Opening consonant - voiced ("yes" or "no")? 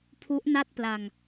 no